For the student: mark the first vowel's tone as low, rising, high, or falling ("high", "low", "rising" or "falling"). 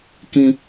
high